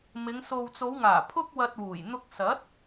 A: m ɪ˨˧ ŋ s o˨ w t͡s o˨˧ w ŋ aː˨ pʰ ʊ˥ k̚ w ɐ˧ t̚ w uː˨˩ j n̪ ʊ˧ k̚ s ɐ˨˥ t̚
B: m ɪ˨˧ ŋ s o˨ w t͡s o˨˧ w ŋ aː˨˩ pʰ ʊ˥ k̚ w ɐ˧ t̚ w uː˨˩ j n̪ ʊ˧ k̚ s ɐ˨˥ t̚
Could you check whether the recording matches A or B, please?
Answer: B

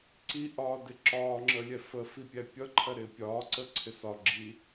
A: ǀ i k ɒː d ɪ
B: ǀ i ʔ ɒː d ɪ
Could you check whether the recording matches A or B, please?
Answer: B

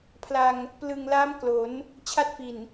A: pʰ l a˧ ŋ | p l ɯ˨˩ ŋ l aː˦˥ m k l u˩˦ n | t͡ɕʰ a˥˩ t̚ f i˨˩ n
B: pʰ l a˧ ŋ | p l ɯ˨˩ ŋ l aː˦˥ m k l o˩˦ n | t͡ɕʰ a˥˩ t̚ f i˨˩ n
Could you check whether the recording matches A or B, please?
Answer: B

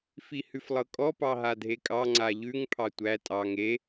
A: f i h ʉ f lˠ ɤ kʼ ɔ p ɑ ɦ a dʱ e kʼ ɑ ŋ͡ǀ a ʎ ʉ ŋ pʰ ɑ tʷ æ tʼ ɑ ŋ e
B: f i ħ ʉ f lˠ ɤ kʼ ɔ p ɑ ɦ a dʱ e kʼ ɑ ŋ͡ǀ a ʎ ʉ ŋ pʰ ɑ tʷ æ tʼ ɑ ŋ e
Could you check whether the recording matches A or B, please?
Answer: A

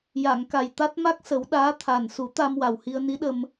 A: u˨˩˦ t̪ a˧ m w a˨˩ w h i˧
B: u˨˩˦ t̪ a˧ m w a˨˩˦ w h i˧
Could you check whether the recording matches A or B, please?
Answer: A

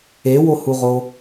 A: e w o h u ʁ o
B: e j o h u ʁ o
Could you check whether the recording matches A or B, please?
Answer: A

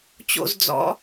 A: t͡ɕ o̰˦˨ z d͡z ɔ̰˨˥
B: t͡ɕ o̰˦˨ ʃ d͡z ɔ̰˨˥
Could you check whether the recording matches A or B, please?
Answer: A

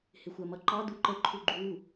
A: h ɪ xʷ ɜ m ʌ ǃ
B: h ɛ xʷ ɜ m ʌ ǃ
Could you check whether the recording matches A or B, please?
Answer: A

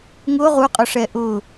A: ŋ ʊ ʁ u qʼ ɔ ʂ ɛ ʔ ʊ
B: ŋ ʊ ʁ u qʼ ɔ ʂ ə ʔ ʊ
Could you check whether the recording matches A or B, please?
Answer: A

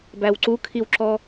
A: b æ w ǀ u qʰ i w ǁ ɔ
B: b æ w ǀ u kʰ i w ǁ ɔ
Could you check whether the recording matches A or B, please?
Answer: B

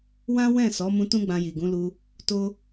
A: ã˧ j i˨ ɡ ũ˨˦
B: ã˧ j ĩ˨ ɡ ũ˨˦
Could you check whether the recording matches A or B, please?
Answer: A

